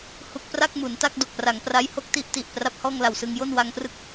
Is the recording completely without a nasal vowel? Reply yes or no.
yes